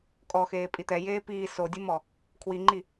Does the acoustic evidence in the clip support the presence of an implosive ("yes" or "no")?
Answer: no